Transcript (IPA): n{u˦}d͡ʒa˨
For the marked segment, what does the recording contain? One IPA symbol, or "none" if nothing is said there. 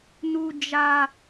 u˨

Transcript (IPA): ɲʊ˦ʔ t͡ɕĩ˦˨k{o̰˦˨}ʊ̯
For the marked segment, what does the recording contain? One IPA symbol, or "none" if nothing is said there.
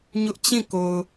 o˨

